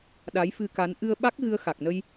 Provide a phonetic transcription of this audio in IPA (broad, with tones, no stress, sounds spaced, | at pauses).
ɗ a˨˦ j f ɨ˧ k a˨˦ n ʔ ɨ˧ ə̯ ɓ a˦˥ k̚ ɣ ɨ˧ ə̯ x a˨˩ k̚ n ə˧ j